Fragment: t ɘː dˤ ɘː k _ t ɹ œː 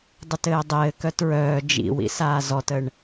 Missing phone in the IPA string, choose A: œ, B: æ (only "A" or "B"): A